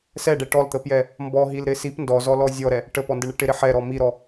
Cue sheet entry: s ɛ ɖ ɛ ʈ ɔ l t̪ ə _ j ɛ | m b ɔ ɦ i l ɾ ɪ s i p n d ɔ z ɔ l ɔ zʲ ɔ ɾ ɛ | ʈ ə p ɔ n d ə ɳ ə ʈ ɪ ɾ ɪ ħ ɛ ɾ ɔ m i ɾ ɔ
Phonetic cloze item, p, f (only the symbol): p